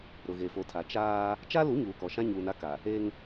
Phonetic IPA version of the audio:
ɾ ʊ˨ ɣ e˨ f o˨ tʰ a˨ t͡ʃ aː˦ | t͡ʃ a˦ l u˨˦ ɲ uː˨ k ɔ˨ ʃ ã˦ ɲ uː˨ n a˦ k a˨ | e˦ ŋ

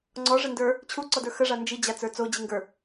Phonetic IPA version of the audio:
ŋ͡ǀ ɔ ʐ ə n d ə˞ | t͡ɕʰ u ǀ ɔ d ə˞ x ə ʐ a n d͡ʒ i d͡ʑ a t͡s ə˞ t͡s o d͡ʑ i ŋ ɡ ə˞

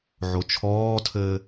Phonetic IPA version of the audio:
ʕ o t͡ʃʰ ɔː tʰ ɘː

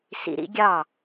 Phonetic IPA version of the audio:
s ḭ˧ ɾ ḭ˦ ɡʲ ɑ˦˨

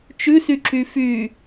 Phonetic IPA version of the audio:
t͡ʃ ʉ s y ǁ y f y

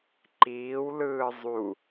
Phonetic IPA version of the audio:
ǃ iː w l ɯː zˤ u

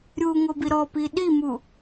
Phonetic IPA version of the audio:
ɾʲ u ŋ o b i ɾ ɔ p i ɗ i m u

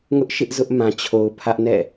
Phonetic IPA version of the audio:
ŋ ʊ˦ ʔ ʃ ɪ˦ ʔ z ʊ˦ ʔ m ã˨ t͡ɕʰ o˨ ʊ̯ pʰ ä˦ ʔ n ɛ̰˦˨

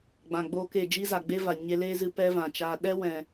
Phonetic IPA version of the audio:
ɡ͡b ã˨ ɡ͡b oː˦ k e˦˨ d͡ʒ iː˦ z a˨ ɡ͡b e˦ v a˨ ɲ e˧ l eː˦ z ɨ˧ p ɛ˦ v ã˨ t͡ʃ aː˧ ɗ ɛ˦ w ɛ̃˨

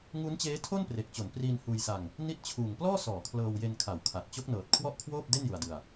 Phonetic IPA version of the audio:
ŋ u˦˥ n t͡ɕ eː˦˥ tʰ o˥˩ n p r e˨˩ k̚ t͡ɕ o˩˦ n p r iː˧ n h uː˧ j s a˧ ŋ | n i˦˥ t̚ t͡ɕʰ uː˨˩ ŋ p l ɔː˥˩ s ɔː˩˦ kʰ l ɤː˧ w j e˧ n kʰ a˩˦ w kʰ a˨˩ t̚ t͡ɕ o˦˥ k̚ n ɤː˨˩ t̚ kʰ w ɔ˥˩ ʔ kʰ w oː˥˩ p̚ d e˥˩ n j u˧ a̯ d ɯ˧ a̯

